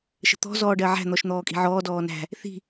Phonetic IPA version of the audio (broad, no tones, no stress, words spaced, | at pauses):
ʃə̤t̪ɔ̤ zɔːɖɜʕæ̤ n̪ɔʃn̪ɔːkʼi̤ʕɔː dɔːnæ̤ | θi̤